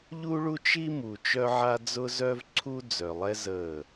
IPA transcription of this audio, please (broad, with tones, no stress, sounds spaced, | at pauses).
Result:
ʎ u˦ ɭ u˦ t͡ʃ i˦ m u˨ t͡ʃ œ˦ ʕ a˦ d͡z ʊ˦ z œ˦ v ǀʰ u˦ d͡z œ˨ lˠ ɛ˦ z ə˦˨